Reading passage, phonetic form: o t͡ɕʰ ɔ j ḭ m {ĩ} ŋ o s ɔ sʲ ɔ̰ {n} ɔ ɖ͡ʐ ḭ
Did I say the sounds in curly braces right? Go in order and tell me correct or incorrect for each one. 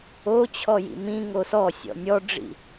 correct, incorrect: nʲ

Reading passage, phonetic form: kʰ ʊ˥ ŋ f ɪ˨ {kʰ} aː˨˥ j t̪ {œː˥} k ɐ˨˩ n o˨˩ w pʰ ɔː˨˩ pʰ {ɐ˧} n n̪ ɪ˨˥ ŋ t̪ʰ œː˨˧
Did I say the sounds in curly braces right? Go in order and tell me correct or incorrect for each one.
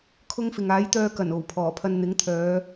incorrect: ŋ, incorrect: œː˧, correct

